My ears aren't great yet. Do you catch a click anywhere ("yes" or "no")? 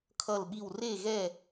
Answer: no